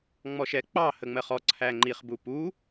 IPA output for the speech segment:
ŋ͡m ɔ ʃ ɛ k͡p ɑ h ə ŋ͡m ɜ χ ɔ ǀʰ æ ŋ͡ǃ i χ b u p u

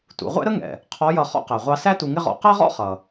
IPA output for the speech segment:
t ṵ˩˧ ʁʷ ɛ̰˥ ɾ ə˥ ŋ ɛ̰˩ | qʰ ɔ˧˥ j ʌ˧ χ ɔ̰˧ q æ˩ ʁʷ ɑ˧ s æ˥ t u˧ ŋ ɪ˥ ʁ ɔ̰˧ q æ˥ ʁ ɔ̰˥ χ ʌ˩

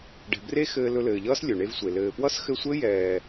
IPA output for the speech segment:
ɖ ɛ̤˨ b r e˦ x ɘː˧ l ɵ˧ l ɘː˨ ʎ ʌː˦ s lʲ ɵ˨ ɳ e˦ v sʷ e˨ l ɘː˨ p w ʌ˦ s x ɘ˧ sʷ ɘ˦ j ɛː˨

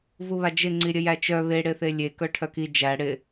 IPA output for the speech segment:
v u β a d͡ʒ ɪ ŋ͡ǀ i ɾʲ ə j æ t͡ʃ œ β e ɽ ɪ θ e lʲ e k œ ʈʰ œ k i d͡ʒ æ ɽ ɪ

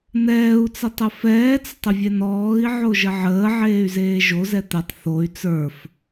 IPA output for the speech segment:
n̪ ɛː u̯ t͡s ɛ tˤ ə f ɛː t͡s ə tˤ ə vʲ ɛ n ɔː i̯ ʕ o ʒ ə ʕ əː ʕ eː y̯ z eː ʒ o z ɛ t̪ ɛ tˤ θ o y̯ t͡s ə˞ f

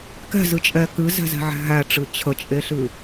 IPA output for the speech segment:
k ɛ̤ z ɨ t͡ʃʼ ɛ k ɨ z ɛ̤ z ɛ̤ ʕ æ̤ ɦ æ ʈ͡ʂ ɨ t͡ɕʰ ə t͡ʃʼ e ɬ ɨ

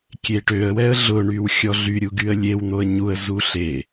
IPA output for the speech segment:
kʲ e ʈ ø ə̯ w ɛ ə̯ ɮ ʊ ɳ y w xʲ ɔ ɮ y ɾʲ u ɡ y ə̯ lʲ e w n̪ o ə̯ ɲ u ə̯ z u ɬ e

